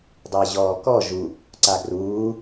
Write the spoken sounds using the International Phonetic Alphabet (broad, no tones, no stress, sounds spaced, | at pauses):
dˤ əː ʑ ɔː k ɔ ʒ u | ǀ a ɡ r uː